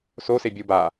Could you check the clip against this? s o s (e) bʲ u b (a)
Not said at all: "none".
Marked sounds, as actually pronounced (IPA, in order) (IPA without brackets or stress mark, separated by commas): e, a